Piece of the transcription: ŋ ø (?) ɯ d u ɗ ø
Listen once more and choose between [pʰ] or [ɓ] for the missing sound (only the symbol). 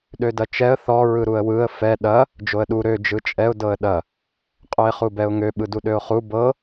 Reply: ɓ